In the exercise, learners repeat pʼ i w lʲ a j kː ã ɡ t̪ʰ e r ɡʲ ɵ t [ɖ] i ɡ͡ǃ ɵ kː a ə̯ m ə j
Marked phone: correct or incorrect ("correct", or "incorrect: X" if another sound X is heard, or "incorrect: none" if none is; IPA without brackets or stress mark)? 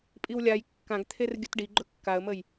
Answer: correct